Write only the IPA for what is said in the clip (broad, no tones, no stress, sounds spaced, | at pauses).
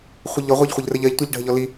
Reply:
χʷ ɪ ʎ ɔ ʁʷ ɜ ʎ χʷ ɪ ʎ r ə ʎ ɜ ʎ tʷ ɜ ʎ ɖʱ ə ʎ ɔ l i